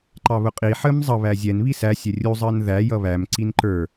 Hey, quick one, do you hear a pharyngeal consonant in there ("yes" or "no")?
yes